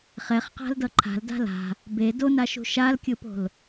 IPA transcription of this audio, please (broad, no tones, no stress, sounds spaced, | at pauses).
χ ɛ χ q a̤ l d ʌ ǃʰ a̤ l d a̤ l a̤ | b e d o n a ʃ ṳ ʃ a l kʲ ɯ p o̤ l